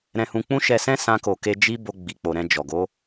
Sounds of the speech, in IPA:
ɾ ɛ̃˧ h ũ˧ k͡p ũ˦ ʃ ɛ˧ s ɛ̃˦ s ã˧ k o˨ k e˧ d͡ʒ i˦ b o˧ ɡ͡b i˨ k͡p o˨ ɾ ɛ̃˧ d͡ʒ ɔ˨ ɡ o˨˦

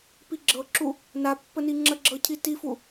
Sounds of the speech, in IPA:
p i ɡ͡ǁ ɤ ǁ u | n a pː ə n i ŋ͡ǁ ə ɡ͡ǁ ɤ cʰ i t i f u

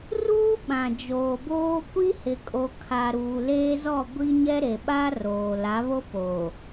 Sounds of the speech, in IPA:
r uː˦ ɓ ã˨ d͡ʒ oː˨ b oː˦ kʷ i˦ h ɪ˨ kʼ o˨ kʰ a˨ ɾ uː˨ l eː˦ z ɔ˦˨ ɡʷ i˦ ɲ ɛ˦ ɾ e˨ ɓ a˦ r oː˨ l a˨˦ β o˦ p oː˨

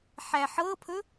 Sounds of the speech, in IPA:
ħ æ ħ ɤ pʰ ɵ

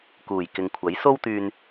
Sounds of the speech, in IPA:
k uː˨˩ j k ɪ˨ ŋ kʷʰ ɐ˨˥ j s o˥ w t̪ yː˧ n

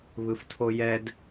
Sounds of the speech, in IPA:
β ɯ f tʰ o j ɛ d

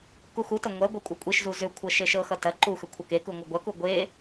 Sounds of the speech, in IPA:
k u x u t ɐ ŋʷ ɐ ɡʷ ɐ kʷʼ ɐ kʷʼ i ʃ z u z ʏ kʷʰ ɤ ʃ e ʃ ɤ x ʌ t ɐ ǃ u x ʏ kʷʰ ʌ k e k u ŋʷ ʌ ɡʷ ɐ k u ɡʷ e

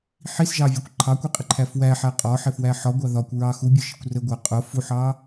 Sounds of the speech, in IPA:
ħ i s ʒ ɑ vʲ ʌ kʷ ǃʰ ɑ kʷ i qʼ ɪ ǃʰ æ f w æ ħ æ qʼ ɒ ħ ɪ f w æ ħ ɒ ɡʷ ɑ ð ɒ kʷ ɹ ɑ x u bʲ ʊ ʃ ɪ kʷ r ə ɡʷ æ qʼ ʊ f u ħ ɑ

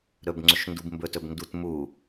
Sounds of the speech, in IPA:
ɾ ɵ b ŋ͡ǀ ɵ ʃ n d u b m b ɵ t ɵ b n d u t m u

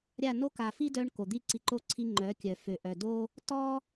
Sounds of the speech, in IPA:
ɾʲ a˦˨ n o˦ k a˨ f i˦ d œ˧ ɳ k o˨ d̪ i˦ ǀ i˧ ǃ o˦ ǀʰ i˧ ŋ͡ǃ œ˨˦ kʲ œ˨ f ø˨ ʔ œ˨ d o˦ | t ɔ˦

